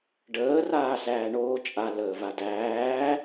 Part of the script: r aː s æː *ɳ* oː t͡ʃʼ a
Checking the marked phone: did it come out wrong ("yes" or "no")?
no